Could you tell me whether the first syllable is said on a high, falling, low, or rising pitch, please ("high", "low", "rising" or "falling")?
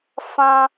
high